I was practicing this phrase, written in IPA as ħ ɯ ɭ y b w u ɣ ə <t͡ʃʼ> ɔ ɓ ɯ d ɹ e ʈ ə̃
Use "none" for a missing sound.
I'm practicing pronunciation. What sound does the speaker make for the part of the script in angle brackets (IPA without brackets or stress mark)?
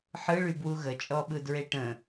t͡ʃʼ